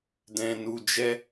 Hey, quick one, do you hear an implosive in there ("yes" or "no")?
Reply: no